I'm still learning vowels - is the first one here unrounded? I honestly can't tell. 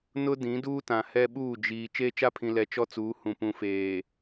no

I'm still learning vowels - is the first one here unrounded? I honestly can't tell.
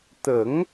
yes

